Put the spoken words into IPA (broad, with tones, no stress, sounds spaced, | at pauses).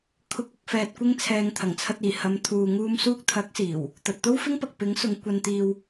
kʰ ʊ˨˥ k̚ ʊ˨ k̚ f ɛː˨ t̚ kʷ ɪ˧ ŋ t͡sʰ ɛː˨ ŋ t̪ʰ ɐ˨˩ ŋ t͡sʰ ɐ˧ t̚ iː˨˩ h ɐ˨˧ m t̪ʰ uː˨ ŋ uː˧ m s uː˧ k̚ t̪ʰ ɐ˨˥ k̚ s iː˨˩ w | t̪ ɐ˨ t̚ t̪ o˥ w f ɪ˥ ŋ p ɐ˨ k̚ p ɪ˨˥ ŋ s ʊ˨˧ ŋ kʷ ɐ˧ n t̪ iː˧ w